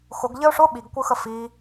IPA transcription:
x ʊ ɡ ʎ ɘ ʊ̯ ʂ ʊ ɓ i ɡ kʷ ɯ x ə f i

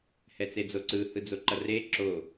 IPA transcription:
h ɛ t͡s e d͡z o ǀ ɯ h ɯ d͡z o ǃ ʌ r e ǁ o

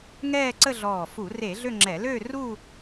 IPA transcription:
ŋ ɛː˥˧ ǀ ə˥˧ ɮ ɔː˧˩ f u˧˩˧ r e˧˩˧ ɮ ø˥˧ ŋ͡ǁ ɛ˧˩˧ l ø˥˧ r u˥˧

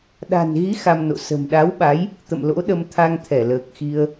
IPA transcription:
ɗ a̤˨˩ n ɣ i˨˦ x a˧ m n o̰˧˨ s ə̤˨˩ m ɗ a˨˦ w ɓ a˨˦ j | t̪ ə̰˧˨ m l o̰˧˥ ɗ ə˧ m t̪ʰ a˧ ŋ t̪ʰ ɛ˧˩ l əː˨˩ k̚ x i˧ ə̯

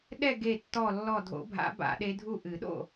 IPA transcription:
ɗ ɛ˥˨ ɡ e˧˩ tː ɔ˧˩ lː ɔ˧˩ dʱ o̰˨˩˦ bʱ a̰˨˩˦ b a̰˨˩˦ ɗ e˧˥ dʱ u˥˨ ʔ ɨ˨˩˦ ɗ o̰˥˨

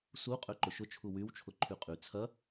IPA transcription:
s u qʼ ø ǃ ʊ ʃ ʊ t͡ʃʰ u w y w t͡ʃʰ ʊ ǃʰ y qʼ y t͡sʰ ɐ

